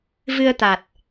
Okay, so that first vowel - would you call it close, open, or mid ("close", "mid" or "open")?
close